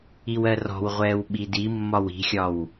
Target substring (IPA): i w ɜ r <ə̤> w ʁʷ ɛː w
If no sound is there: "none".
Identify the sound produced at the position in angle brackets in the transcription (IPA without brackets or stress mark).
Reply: ɔ̤